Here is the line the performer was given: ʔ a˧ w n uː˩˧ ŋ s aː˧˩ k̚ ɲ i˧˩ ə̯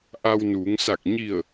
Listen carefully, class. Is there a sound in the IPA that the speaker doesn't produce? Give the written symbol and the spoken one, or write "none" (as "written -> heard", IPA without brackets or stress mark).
aː˧˩ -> a˧˩